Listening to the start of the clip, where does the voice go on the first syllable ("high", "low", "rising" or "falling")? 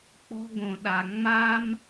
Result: high